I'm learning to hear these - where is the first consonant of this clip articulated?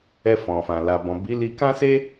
lips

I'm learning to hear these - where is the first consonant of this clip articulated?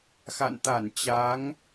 velum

